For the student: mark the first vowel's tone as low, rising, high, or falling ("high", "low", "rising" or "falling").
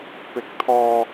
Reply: high